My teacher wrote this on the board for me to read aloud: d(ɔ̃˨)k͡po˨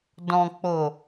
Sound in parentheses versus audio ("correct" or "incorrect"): correct